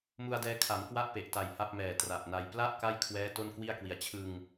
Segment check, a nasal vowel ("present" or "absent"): absent